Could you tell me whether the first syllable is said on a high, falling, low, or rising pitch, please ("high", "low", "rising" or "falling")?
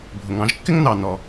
low